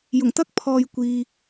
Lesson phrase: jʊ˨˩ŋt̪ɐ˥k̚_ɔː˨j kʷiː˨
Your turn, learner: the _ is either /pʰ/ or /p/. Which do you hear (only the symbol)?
pʰ